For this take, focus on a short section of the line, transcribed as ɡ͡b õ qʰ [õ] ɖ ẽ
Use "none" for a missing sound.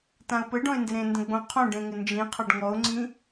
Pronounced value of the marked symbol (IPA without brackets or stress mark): õ